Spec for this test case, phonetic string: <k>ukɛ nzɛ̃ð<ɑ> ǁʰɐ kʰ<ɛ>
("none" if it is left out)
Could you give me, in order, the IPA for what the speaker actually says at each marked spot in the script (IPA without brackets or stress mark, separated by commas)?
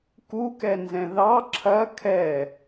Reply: k, ɑ, ɛ